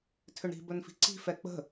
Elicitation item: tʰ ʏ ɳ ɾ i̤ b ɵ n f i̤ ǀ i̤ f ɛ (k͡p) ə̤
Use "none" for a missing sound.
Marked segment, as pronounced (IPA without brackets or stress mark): k͡p